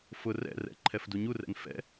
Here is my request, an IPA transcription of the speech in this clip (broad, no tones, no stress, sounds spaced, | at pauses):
f ʊ r ɛ̰ r ɛ̰ ǃʰ ɛ f d u ɲ u r ɛ̰ n f ɛ̰